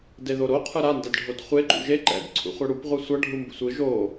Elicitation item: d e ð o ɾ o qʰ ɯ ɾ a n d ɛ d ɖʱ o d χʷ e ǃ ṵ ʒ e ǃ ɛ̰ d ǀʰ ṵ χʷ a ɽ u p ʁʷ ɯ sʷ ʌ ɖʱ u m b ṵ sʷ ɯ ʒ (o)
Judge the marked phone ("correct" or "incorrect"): correct